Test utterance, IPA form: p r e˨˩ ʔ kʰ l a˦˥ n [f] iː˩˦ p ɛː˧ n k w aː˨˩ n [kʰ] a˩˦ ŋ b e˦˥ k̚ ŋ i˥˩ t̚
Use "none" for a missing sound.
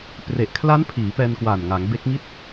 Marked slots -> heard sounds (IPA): pʰ, ŋ

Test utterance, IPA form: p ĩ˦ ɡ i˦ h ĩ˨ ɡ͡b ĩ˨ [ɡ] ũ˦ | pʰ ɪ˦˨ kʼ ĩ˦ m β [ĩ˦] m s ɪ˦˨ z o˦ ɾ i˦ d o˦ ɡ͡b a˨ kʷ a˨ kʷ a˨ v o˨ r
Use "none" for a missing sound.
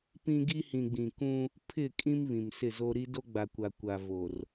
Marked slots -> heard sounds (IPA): k, ĩ˨

